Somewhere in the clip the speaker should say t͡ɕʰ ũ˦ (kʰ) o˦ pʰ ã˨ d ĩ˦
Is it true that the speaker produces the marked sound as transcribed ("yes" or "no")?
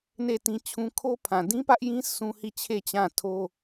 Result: yes